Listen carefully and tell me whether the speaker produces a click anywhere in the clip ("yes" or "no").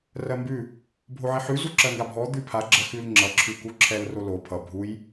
yes